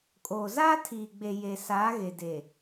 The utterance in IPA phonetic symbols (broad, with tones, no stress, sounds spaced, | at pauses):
kʼ oː˨ z aː˦ tʰ iː˨ ɡ͡b e˨ j e˨ s aː˨˦ ɣ e˨ d e˨